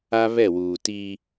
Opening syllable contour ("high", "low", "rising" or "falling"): high